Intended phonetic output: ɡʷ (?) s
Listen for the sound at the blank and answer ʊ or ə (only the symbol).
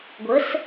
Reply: ə